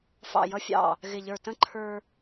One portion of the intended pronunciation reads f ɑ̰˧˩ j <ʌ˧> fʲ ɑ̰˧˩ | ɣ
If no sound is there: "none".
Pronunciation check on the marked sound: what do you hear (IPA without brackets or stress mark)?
ʌ˧